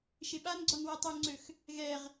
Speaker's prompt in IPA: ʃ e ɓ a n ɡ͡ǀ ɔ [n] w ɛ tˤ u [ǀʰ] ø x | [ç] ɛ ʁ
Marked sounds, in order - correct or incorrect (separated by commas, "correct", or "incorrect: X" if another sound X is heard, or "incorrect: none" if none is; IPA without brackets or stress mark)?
correct, incorrect: ŋ͡ǀ, incorrect: ɣ